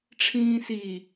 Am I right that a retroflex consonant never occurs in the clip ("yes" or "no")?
no